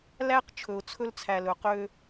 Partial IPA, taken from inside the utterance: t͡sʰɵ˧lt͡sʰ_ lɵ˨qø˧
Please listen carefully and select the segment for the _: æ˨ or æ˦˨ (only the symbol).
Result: æ˨